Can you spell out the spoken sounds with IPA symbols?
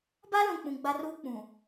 b a˦ l ũ˨ k͡p ũ˨ ɡ͡b a˦ r uː˦ k͡p ũ˨

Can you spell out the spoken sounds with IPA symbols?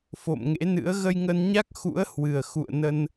f o̰˧˨ m ŋ ḛ˧˥ n ɨ̰˧˥ ə̯ ɣ ə˧ j ŋ ə˧ n ɲ a˦˥ k̚ x ṵ˧˥ ə̯ h w ɨ˨˩ ə̯ x ṵ˧˨ ə̯ n ə˧ n

